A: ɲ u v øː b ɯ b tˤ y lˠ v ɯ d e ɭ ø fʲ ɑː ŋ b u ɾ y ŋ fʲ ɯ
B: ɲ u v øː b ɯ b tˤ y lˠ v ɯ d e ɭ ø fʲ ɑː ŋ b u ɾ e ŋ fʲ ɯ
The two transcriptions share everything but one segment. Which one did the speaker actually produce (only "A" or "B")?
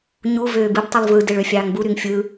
A